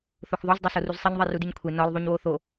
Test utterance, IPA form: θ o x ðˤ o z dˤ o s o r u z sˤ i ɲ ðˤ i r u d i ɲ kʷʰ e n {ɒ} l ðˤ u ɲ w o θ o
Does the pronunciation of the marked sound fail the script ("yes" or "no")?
no